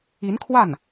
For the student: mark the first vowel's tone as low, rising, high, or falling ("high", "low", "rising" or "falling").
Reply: rising